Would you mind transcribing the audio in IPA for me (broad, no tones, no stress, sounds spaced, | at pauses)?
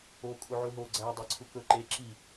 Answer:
o kʼ u ʕ u ɦ o ɡ͡ǀ æ dˤ e ǀʰ u k ɵ ǃ e ǁ i